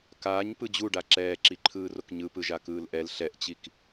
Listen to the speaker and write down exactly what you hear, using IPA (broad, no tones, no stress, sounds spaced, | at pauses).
k aː ɲ p ɯ d͡ʑ u ɖ a ǁ ɛː ǁ i ǃʰ ɯː r o k ɲ ɯ p ɯ ʒ a k ɯː l ʔ ɛ l ɬ ɛ ʔ t͡ɕ i k